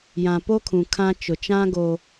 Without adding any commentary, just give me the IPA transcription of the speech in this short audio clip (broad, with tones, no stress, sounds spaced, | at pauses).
j ã˨ p o˦ kʰ ũ˨ kʰ ã˦ t͡ʃ ʊ˨ t͡ʃ ã˦ ɡ o˦